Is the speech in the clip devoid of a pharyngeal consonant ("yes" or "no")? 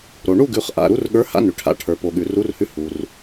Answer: yes